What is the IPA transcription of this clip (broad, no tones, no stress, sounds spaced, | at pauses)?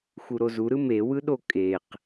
x u ɾ o z u ɾ ɯ m e w ɯ ɗ o kʼ e q